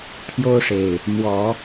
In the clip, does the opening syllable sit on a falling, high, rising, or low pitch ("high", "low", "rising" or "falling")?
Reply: high